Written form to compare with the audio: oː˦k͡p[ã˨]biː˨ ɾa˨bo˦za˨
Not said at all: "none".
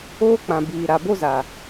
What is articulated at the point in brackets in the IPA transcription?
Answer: ã˨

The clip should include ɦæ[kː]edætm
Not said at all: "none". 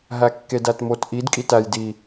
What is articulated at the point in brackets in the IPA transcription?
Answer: kː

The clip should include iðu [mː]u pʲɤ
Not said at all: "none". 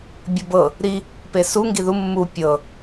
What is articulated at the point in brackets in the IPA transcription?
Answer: mː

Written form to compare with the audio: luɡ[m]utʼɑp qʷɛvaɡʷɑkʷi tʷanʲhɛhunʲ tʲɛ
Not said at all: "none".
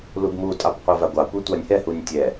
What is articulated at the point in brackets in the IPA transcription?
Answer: m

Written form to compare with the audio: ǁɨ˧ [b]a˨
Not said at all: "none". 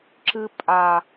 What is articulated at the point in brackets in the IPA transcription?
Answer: pʼ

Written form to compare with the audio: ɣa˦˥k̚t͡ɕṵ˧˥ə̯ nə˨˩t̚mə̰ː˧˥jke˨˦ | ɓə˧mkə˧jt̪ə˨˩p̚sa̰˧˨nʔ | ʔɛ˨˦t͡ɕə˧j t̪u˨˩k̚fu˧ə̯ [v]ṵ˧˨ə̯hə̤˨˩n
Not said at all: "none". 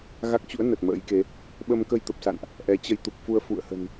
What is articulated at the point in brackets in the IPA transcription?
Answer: f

